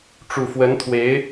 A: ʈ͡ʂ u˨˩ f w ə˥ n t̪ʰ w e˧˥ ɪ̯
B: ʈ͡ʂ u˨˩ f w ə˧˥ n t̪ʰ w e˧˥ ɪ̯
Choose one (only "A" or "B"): B